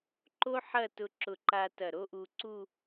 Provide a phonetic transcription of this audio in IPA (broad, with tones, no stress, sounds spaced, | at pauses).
ǃ o˥ ħ ɐ˥˧ t ʊ˧ ǁ ʊ˧˩ ǃ a˧ t ɐ˧˩ ɾ o˥ ʔ u˧ ǀ u˥˧